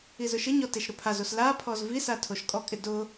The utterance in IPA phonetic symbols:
i z ʊ ʃ ɪ ɲ ɔ t e ʃ ɾ ʊ pʰ a z o s l a pʰ ɔ z v i s a tʰ o ʃ kʼ ɔ kʼ ɪ d ʊ

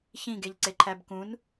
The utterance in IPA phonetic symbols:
ç ĩ ɡ e ʎ ǀ e ǃʰ æ b k ũ n

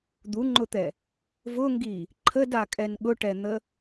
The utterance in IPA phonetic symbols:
d̪ u ŋ͡ǃ ʊ t̪ ɛ | v ʊ ŋ ɡ i | ǃʰ ə d a kʼ ɛ n ɠ ʊ ʈ ɛ n̪ ə

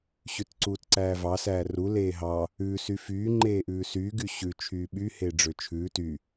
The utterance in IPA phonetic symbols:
ɕ ʉ t ǀ uː t ǀ æː v ɑ s æː r u l eː ɦ ɑ | ʉ s y f yː ŋ͡ǃ eː ʔ ʉː s yː ɡ y ɕ ʉ t͡ʃʰ yː ɓ y h eː ɖ͡ʐ ø t͡ʃʰ ʉː t y

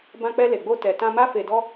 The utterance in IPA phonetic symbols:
b ã˧ k͡p ɛ˧ l e˨ ɡ͡b o˧ t ɛ˨ t ã˧ m a˦ f e˧ d ɔ˦

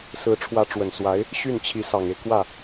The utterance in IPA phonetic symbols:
s ɹ̩˧˥ ʈ͡ʂʰ w ä˧˥ ʈ͡ʂ w ə˨˩ n s w a˧˥ ɪ̯ | ɕ y˥˩ n t͡ɕʰ i˧˥ s ɑ˨˩ ŋ e˦ ɪ̯ k w ä˥˩

